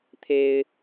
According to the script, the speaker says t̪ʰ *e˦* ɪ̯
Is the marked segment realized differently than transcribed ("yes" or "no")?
no